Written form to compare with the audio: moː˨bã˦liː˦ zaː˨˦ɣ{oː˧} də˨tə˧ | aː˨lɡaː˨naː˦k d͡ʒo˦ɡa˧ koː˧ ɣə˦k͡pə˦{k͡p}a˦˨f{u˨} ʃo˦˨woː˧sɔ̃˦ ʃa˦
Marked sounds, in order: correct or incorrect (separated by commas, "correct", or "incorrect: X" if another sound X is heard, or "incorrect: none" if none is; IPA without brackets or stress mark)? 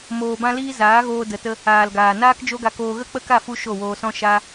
correct, incorrect: k, incorrect: u˧